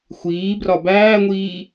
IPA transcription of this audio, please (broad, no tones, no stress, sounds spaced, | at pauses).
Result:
xʷ iː b r ɒ b æː ŋʷ iː